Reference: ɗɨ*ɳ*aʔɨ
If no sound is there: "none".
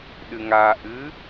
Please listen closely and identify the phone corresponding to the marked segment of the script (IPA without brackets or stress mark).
ŋ